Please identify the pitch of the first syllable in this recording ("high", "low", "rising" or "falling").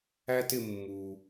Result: high